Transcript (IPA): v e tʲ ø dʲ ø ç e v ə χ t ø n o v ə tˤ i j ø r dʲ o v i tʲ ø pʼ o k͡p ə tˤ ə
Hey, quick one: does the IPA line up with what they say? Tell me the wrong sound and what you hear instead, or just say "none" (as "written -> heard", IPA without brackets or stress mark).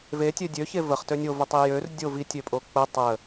n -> nʲ